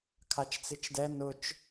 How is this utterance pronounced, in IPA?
kʰ a t͡ʃ t͡s i t͡ʃ d ɛ n ʊ t͡ʃ

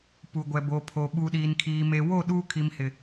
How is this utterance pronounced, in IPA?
p u˨ ɡʷ ɛ˨ b o˨ pʰ o˨ ɓ u˨ ɗ iː˨ n kʰ iː˨ m e˨ w o˦˨ ɗ uː˦ kʰ i˨ m h ɪ˨

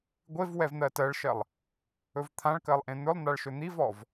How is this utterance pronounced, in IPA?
ɡʷ e v w ɛ v n̪ ɜ t ɜ ɭ ʃ ɜ lˠ | ɵ v t̪ʰ ã ɭ k ɜ lˠ ʔ ẽ n̪ ɵ lˠ n̪ a ɭ ʃ ɵ n̪ i v ɔ v

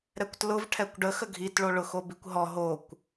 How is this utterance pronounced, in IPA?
ɾ ɛ kʷ t l ʊ v ʈʰ ɛ kʷ ɖ ə x ə ɡʱ i t ɭ o ɭ ʊ x o b i kʷ ɦ ɔ ɦ o kʷ

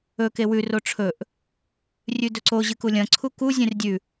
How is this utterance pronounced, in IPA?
ɵ k e w ʉ r o ʈ͡ʂʰ ɵ ʔ | rʲ ʉ d ɵ ǀ o ʑ ɨ k u lʲ ɐ̃ ǀʰ u k u zʲ ẽ r dʲ ʉ

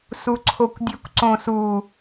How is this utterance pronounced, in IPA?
s u ǀʰ o kʷ dʲ ɵ kʷ ǀ õ s u

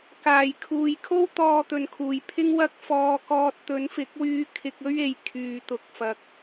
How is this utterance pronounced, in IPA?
k aː˨˩ j kʰ uː˨ j kʰ o˥ w t̪ ɔː˨ t̪ ɵ˨ n kʰ uː˨˩ j pʰ ɪ˥ ŋ w ɐ˥ k̚ f ɔː˧ k ɔː˧ t̚ t̪ ɵ˨˥ n f ɪ˨˥ k̚ w yː˧ kʰ ɪ˧ k̚ ɵ˥ ɥ e˨ j kʰ yː˨ t̪ ʊ˨ k̚ f ɐ˨ k̚

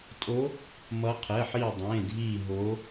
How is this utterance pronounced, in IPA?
tʼ o˨˦ | m ʌ˨˦ qʰ ɛ˩˧˩ ħ iː˧˩ dˤ ẽː˩˧˩ dʱ iː˧˩ ɦ oː˨˦

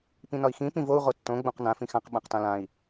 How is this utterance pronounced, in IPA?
p ĩ n ɒ i̯ x ĩ p ĩ v o u̯ ʁ o tː õ ɡ͡b õ q n ã f ĩ x ã q ɓ ã q t ã l ã i̯

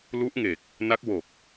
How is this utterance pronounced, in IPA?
l u˦˥ ʔ ŋ e˨˩ k̚ | n a˦˥ k̚ w o˨˩ k̚

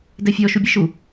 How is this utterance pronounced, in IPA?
d ɛ fʲ ɔ ʃ u bʲ e ʃ u

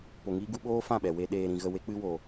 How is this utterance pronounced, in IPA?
p o˧ ŋ iː˦ ɡ u˦ ɓ oː˦ f ã˦˨ ɓ ɛ˨ w e˧ ɗ eː˧ ɾ ĩ˧ ɣ ə˧ w e˦ k͡p ɨ˦ w o˧

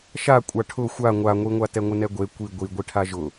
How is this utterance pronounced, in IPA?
ʃ a kʷʼ a ʈʰ ʊ xʷ a ŋʷ a ŋʷ i ŋʷ a t ɛ ŋʷ ɪ n ɛ ɡʷ e kʷ i ɡʷ i ɡʷ i ʈʰ a ʒ ʊ

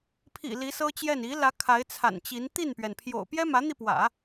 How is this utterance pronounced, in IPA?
pʰ ḭ˨˩ l i˧˥ s ɤ˥ t͡ɕ j ɛ˥˩ n i˧˥ l ä˧˥ kʰ a˧˥ ɪ̯ t͡sʰ a̰˨˩ n t͡ɕ i˧˥ n t̪ i˥˩ n p ɥ ɛ˩ n pʰ j o̰˨˩ ʊ̯ p j ɛ˥ m ä˧˥ n̪ i˧ p w ä̰˨˩˦

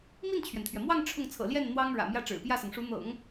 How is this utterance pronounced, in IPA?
m i˥˩ n t͡ɕʰ ɥ ɛ˩ n t̪ʰ ɥ ɛ˩ m w ɑ˥˧ ŋ ʈ͡ʂʰ ʊ˥˩ ŋ t͡sʰ ɤ̰˨˩ l j ɛ˥˩ n n̪ w ɑ˥ ŋ ɻ ä̰˨˩ m j ä˥˩ ʈ͡ʂ ɻ̩˨˩ p j ä˥˩ s ɤ˩ ŋ ʂ u˧˥ n̪ ɤ̰˨˩˦ ŋ

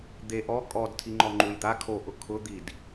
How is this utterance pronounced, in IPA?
d̪ e ʔ ɔ kʼ ɔ d tʰ i ŋ͡ǃ ɔ ŋ͡ǃ u j d̪ a kʰ o ʔ ʊ kʰ ʊ d̪ i d

